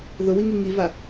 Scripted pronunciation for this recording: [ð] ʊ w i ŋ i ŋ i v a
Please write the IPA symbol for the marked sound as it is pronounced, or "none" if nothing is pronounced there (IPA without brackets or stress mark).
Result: ð